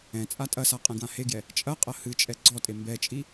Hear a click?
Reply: yes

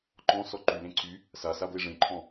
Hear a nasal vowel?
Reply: yes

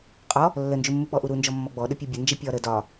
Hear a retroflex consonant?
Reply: no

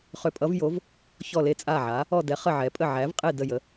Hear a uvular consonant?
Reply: yes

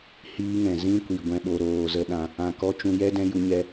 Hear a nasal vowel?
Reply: yes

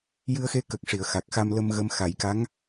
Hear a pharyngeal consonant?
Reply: no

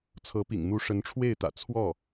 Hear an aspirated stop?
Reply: yes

